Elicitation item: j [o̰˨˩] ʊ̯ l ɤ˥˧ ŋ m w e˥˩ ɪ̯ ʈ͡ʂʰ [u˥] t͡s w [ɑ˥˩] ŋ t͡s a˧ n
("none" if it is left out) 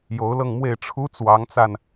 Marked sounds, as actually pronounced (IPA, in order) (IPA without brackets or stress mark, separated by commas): o˧˥, u˥, ɑ˧˥